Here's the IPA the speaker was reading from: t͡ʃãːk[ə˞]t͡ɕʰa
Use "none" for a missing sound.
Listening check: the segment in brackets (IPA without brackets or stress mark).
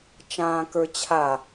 ə˞